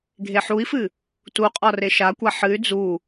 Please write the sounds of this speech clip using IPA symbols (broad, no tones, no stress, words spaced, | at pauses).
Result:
ɡʱeħui̯fɨ | tuqʼɒ reʃakʷa ħɨy̯ d͡zu